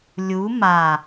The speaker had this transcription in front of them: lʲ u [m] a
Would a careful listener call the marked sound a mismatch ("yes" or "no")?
no